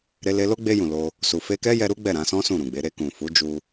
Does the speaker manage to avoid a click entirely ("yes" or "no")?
yes